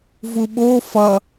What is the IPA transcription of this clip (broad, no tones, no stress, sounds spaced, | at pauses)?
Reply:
v u ɓ o f ʌ